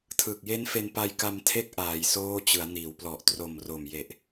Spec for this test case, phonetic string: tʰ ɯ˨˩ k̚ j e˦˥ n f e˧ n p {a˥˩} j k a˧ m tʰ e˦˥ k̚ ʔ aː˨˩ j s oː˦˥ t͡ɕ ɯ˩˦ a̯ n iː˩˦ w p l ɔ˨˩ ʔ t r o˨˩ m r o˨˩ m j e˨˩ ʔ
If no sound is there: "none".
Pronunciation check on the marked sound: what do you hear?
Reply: a˧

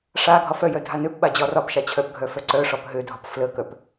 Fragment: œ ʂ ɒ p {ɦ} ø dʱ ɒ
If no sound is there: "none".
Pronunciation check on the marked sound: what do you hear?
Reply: ɦ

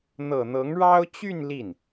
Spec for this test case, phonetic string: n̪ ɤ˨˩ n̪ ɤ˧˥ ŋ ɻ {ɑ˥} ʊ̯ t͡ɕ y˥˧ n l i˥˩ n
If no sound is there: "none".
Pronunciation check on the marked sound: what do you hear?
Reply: ɑ˥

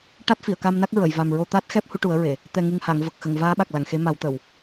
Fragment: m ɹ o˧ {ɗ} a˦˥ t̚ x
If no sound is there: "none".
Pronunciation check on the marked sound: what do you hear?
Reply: t̪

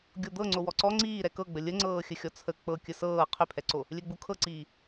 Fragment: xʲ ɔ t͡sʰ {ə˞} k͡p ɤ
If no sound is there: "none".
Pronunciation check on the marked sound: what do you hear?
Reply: ə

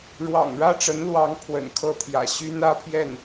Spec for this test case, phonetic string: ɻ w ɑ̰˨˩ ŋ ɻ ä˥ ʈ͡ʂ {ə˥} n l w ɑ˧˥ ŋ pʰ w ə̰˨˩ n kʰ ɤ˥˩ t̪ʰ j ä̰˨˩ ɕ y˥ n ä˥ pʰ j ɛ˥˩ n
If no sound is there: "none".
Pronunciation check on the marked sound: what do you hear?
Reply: ə˧˥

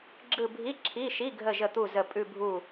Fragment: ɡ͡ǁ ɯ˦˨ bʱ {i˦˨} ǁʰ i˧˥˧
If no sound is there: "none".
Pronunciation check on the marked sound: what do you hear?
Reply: i˧˥˧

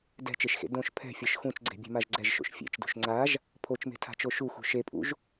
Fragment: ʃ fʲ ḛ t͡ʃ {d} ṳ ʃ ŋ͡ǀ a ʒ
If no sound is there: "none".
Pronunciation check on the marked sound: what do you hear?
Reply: d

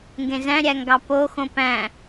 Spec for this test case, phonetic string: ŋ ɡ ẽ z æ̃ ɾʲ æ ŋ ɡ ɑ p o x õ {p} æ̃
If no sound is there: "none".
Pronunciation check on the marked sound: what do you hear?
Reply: p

